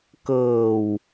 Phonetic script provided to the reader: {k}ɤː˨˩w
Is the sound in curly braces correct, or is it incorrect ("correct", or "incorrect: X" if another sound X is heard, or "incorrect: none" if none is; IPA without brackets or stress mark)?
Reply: correct